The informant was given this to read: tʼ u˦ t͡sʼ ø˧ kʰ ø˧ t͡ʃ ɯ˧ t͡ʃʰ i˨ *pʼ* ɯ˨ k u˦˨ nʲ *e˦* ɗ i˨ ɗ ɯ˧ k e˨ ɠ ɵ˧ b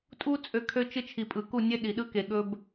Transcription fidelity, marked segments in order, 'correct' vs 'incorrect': correct, correct

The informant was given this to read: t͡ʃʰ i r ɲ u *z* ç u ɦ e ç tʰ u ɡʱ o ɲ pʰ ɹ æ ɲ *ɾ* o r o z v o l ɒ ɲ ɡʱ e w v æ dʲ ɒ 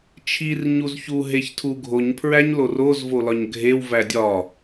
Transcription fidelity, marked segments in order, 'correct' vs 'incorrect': correct, incorrect

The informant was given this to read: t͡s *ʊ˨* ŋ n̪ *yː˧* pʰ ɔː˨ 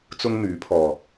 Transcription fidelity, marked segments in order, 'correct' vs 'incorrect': incorrect, incorrect

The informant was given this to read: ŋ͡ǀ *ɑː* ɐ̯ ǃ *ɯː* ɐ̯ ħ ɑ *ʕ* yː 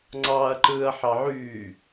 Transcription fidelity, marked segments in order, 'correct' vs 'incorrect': correct, correct, correct

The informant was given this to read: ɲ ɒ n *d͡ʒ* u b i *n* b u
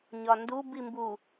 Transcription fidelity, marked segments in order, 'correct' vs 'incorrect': incorrect, incorrect

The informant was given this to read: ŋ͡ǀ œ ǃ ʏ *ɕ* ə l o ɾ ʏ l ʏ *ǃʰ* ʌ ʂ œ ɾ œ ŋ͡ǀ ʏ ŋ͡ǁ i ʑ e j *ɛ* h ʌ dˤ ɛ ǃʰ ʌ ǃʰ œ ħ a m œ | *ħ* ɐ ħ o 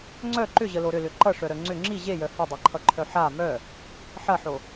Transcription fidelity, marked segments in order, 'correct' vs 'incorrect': incorrect, incorrect, incorrect, correct

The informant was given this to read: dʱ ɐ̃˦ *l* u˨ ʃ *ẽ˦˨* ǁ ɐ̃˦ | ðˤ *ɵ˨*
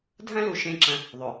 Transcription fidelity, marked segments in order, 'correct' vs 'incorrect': correct, correct, correct

